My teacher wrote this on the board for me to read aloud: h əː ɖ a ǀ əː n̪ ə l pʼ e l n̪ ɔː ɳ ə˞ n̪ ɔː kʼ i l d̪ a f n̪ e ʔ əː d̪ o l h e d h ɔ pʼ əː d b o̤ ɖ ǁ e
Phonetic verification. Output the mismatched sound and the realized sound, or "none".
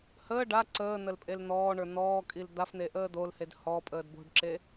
none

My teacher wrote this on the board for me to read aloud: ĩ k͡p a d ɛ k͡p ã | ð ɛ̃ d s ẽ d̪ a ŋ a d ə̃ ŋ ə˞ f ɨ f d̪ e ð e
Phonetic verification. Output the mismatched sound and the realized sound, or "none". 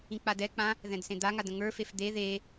ɨ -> e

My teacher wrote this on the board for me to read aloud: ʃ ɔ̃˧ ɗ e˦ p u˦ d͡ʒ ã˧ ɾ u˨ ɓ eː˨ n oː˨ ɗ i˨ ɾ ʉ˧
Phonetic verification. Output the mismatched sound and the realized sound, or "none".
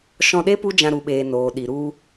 ʉ˧ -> u˧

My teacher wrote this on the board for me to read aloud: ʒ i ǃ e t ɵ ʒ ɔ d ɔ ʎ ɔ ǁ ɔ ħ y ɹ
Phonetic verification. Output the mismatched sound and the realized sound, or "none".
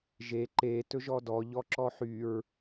i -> e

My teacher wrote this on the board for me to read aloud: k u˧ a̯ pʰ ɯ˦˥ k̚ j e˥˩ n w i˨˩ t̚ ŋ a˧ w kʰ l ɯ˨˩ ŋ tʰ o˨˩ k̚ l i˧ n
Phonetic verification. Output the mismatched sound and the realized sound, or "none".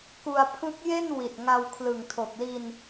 none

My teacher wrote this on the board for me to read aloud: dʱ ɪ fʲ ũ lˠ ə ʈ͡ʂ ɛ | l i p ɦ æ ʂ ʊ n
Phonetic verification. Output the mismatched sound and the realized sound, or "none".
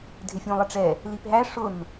none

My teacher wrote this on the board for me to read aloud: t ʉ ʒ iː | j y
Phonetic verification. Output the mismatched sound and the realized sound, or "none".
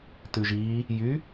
none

